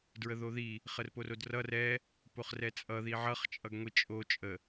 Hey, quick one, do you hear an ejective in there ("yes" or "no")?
yes